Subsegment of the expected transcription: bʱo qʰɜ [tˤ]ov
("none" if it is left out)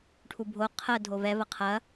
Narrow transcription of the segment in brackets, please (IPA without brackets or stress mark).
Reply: dʱ